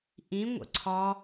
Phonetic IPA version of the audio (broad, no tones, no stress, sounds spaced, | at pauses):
ʔ ĩ ŋʷ ə̰ ǀʰ ɒ